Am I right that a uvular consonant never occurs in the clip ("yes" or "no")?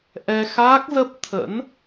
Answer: yes